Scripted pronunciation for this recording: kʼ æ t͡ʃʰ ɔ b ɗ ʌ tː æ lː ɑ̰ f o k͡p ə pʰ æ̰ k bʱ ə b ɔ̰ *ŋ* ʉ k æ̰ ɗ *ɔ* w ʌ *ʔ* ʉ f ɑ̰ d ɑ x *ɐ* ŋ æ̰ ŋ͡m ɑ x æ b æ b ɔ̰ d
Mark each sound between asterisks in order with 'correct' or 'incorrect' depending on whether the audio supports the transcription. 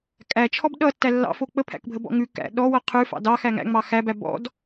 correct, correct, incorrect: qʰ, incorrect: æ

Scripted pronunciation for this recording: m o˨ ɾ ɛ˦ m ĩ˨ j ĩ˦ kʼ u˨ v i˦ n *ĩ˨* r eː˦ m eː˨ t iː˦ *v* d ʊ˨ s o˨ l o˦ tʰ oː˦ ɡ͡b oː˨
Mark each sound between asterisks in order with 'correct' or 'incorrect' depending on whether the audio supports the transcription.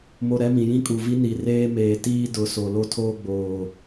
incorrect: i˨, incorrect: none

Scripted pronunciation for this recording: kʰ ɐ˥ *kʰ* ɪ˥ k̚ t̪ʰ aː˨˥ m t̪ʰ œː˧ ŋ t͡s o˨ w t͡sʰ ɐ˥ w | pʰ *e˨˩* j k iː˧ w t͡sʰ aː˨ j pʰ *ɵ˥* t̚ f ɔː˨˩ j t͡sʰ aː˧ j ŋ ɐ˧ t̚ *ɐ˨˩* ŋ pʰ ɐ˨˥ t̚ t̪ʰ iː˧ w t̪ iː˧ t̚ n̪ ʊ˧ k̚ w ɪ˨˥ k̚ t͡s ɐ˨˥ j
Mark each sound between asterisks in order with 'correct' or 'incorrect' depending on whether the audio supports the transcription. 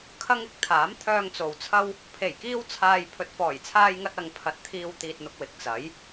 incorrect: ŋ, correct, incorrect: ɵ˨, incorrect: ɐ˨

